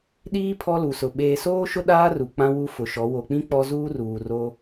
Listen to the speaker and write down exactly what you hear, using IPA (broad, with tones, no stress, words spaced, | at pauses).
ɗiː˦ pʰɔ˦lu˨sʊ˨ ɓeː˨soː˦ʃʊ˦ ɗaː˦ru˨ k͡pã˦wu˦ fʊ˨ʃɔ˨˦ wo˨k͡pĩ˦ k͡pɔ˦zuː˦ruː˨ ro˦